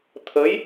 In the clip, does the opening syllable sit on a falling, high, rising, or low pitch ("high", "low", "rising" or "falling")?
rising